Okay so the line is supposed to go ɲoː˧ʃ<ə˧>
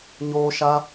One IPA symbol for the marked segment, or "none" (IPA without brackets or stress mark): a˧